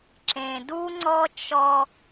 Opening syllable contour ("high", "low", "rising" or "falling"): low